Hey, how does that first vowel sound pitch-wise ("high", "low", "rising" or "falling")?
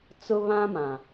high